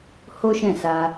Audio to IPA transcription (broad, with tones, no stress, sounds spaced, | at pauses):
h o˦ ʃ ɛ̃˦˨ s a˧